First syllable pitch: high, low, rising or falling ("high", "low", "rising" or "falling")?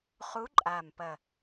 rising